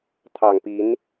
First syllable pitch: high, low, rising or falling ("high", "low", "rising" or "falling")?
low